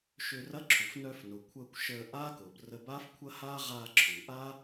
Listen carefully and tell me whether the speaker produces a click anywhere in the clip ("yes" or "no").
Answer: yes